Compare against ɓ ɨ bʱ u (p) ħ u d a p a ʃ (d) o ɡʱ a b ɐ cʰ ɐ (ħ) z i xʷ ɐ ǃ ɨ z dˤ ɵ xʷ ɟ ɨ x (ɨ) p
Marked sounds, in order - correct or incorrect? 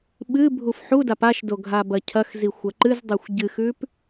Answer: incorrect: f, correct, incorrect: x, incorrect: ʉ

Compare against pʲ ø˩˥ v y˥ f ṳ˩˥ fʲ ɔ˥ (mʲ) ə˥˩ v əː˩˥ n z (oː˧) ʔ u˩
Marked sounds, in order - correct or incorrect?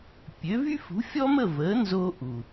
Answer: incorrect: m, correct

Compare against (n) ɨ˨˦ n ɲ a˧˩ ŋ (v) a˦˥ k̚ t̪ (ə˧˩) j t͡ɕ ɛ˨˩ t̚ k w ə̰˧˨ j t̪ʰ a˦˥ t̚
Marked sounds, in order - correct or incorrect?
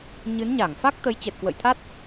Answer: incorrect: ɲ, incorrect: f, incorrect: ə˨˦

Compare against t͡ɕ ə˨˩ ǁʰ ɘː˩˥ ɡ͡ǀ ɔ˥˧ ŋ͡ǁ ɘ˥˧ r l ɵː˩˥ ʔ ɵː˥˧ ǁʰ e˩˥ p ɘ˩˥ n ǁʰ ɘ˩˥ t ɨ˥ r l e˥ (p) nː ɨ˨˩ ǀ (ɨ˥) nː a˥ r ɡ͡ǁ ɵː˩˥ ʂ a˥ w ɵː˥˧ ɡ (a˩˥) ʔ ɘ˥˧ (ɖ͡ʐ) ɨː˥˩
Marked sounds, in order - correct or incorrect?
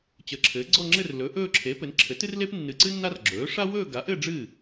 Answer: correct, correct, correct, correct

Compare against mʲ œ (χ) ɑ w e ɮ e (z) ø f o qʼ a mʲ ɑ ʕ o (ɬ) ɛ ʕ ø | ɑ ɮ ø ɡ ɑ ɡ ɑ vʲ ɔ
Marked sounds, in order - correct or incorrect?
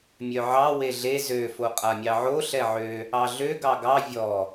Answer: incorrect: ʕ, correct, correct

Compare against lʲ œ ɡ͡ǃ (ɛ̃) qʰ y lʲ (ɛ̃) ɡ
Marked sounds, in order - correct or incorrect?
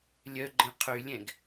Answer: correct, correct

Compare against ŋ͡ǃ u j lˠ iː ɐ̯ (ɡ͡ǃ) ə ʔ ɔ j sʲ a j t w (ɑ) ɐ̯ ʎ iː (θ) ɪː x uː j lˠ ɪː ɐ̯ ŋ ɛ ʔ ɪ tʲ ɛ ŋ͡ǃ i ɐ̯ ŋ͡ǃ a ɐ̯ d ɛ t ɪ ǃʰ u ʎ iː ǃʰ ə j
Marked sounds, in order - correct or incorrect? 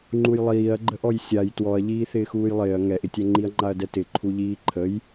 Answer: correct, incorrect: ɔ, correct

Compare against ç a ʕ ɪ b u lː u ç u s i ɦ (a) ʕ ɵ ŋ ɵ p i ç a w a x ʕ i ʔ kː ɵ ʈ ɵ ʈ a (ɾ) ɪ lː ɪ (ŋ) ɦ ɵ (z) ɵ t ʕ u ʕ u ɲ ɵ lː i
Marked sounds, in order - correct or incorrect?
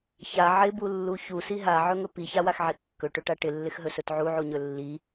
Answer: correct, incorrect: ʈ, incorrect: x, incorrect: s

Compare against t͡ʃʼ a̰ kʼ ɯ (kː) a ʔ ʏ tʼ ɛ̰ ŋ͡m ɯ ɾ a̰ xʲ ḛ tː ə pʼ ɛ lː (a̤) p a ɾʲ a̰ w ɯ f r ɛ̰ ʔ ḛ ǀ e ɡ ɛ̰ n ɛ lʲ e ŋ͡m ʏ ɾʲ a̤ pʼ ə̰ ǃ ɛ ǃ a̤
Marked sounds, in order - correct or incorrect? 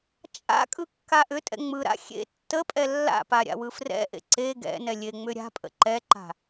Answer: correct, incorrect: a̰

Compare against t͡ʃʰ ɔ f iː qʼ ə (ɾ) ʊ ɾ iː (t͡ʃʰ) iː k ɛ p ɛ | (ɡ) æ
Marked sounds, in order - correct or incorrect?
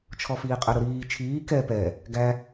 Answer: correct, correct, correct

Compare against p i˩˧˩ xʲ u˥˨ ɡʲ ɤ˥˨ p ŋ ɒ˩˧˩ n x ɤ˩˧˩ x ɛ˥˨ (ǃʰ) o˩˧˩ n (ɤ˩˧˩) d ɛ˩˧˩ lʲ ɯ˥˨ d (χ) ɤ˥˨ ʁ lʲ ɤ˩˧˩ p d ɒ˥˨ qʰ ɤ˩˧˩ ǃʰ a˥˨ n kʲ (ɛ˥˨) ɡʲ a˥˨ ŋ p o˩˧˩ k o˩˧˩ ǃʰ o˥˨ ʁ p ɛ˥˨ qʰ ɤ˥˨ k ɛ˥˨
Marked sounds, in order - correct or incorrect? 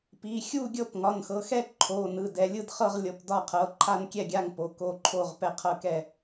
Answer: correct, incorrect: ɯ˩˧˩, correct, correct

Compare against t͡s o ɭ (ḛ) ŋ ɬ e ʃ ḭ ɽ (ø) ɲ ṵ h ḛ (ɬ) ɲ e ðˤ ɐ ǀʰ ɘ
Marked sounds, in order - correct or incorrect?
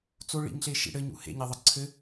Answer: incorrect: ḭ, incorrect: ɘ, incorrect: none

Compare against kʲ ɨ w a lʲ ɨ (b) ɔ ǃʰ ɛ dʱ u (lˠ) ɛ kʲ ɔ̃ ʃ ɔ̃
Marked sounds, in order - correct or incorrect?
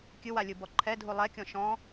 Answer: correct, correct

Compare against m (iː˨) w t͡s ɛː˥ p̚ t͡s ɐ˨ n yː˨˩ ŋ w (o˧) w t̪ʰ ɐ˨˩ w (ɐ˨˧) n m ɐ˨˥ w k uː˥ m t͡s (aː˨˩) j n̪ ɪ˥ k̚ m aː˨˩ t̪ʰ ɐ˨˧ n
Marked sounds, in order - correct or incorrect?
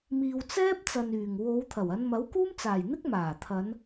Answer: correct, incorrect: o˨˧, correct, correct

